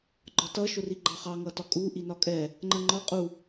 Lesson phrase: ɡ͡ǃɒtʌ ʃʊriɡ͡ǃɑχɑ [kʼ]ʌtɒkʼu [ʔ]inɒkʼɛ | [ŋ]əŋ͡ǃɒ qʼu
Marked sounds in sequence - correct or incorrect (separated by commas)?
incorrect, correct, incorrect